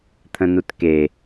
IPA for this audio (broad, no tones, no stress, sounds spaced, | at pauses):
t̪ʰ ə̃ n u t k e